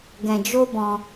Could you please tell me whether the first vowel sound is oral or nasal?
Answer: nasal